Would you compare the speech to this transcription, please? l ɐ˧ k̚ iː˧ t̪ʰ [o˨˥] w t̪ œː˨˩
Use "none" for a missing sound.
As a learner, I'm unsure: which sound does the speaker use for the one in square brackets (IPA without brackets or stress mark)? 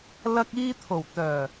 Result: o˨˩